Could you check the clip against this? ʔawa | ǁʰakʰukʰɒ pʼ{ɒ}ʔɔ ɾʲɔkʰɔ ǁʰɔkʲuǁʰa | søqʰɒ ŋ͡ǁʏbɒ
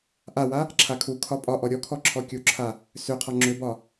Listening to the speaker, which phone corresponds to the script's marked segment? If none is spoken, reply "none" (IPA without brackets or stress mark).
ɒ